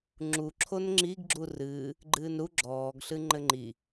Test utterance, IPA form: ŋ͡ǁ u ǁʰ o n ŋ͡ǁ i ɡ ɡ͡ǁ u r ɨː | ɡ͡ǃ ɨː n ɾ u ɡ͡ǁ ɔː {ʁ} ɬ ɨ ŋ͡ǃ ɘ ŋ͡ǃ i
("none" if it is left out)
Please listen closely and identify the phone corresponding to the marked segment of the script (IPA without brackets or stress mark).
ɡ